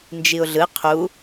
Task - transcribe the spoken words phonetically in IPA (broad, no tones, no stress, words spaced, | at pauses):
nd͡ʒiʊ̯ɮɯ qʰu